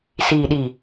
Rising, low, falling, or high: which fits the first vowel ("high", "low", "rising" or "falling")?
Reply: low